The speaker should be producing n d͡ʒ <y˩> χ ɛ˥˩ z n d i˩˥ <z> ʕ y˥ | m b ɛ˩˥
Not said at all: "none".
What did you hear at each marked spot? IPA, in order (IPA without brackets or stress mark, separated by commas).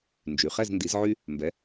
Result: y˩, z